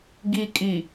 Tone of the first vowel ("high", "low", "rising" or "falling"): low